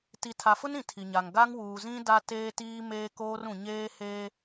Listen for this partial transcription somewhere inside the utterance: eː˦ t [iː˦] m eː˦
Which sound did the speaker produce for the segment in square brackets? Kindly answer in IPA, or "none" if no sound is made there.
iː˦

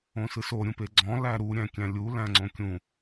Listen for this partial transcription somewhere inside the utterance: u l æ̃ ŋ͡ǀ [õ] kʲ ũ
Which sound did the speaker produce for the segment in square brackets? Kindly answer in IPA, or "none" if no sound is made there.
õ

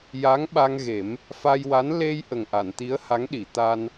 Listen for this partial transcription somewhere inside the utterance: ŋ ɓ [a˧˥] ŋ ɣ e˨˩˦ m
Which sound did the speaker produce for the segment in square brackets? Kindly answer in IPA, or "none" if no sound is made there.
a˧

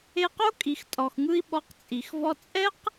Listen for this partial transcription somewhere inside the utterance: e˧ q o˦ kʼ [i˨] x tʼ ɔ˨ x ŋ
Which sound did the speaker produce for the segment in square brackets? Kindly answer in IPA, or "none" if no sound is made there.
i˨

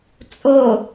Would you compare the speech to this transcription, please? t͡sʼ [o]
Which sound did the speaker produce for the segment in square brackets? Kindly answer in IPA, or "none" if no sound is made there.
o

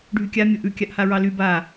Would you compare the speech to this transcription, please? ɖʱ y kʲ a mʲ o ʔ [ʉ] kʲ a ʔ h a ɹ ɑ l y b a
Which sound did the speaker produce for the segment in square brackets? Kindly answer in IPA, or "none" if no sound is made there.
ʉ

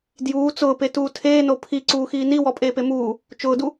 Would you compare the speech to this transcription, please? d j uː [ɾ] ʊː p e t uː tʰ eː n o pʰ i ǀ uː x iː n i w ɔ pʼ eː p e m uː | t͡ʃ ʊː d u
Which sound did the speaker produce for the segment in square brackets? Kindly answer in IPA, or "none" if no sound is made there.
t͡s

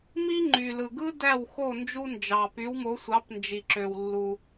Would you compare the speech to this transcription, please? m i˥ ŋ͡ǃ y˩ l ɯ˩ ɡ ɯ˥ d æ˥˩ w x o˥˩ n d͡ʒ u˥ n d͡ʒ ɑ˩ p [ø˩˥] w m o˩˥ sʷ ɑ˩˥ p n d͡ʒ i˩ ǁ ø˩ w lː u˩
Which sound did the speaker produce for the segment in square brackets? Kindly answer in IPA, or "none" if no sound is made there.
y˩˥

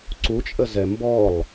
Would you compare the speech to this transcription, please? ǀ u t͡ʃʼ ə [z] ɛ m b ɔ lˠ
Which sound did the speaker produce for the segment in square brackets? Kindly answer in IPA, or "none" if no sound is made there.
z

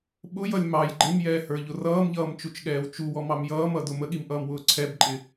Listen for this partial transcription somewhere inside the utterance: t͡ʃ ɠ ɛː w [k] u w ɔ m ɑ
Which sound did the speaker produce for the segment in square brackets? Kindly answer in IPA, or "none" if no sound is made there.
t͡ʃ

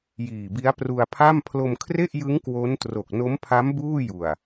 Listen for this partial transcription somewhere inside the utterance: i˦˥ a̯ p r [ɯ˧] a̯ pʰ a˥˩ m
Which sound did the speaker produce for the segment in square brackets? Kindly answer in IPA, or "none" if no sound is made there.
u˧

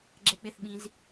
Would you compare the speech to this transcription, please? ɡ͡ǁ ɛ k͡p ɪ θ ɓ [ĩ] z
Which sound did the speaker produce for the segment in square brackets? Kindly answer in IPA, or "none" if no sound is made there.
ĩ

